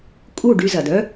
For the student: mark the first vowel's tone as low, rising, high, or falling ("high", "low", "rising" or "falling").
falling